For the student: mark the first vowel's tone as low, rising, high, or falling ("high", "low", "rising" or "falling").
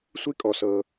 high